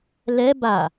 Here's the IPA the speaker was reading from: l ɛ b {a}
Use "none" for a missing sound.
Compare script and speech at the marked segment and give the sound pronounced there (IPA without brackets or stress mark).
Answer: a